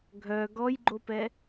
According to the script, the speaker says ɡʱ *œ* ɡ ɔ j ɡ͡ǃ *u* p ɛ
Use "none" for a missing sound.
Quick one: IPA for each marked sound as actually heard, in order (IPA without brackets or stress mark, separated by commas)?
œ, o